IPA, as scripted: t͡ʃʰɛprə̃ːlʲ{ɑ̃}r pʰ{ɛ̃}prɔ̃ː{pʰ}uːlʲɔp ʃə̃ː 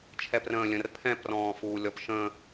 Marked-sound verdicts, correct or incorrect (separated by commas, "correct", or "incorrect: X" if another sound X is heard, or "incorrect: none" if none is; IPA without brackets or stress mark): incorrect: ə̃, correct, incorrect: f